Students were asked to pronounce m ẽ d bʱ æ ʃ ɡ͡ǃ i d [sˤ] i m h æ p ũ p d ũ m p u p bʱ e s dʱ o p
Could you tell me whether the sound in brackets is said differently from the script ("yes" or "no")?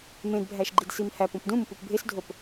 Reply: yes